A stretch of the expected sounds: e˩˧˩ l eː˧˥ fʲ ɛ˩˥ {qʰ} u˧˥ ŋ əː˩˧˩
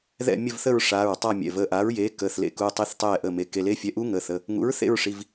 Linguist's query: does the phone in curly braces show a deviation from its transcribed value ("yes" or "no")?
yes